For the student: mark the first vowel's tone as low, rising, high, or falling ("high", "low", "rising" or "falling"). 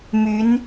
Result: rising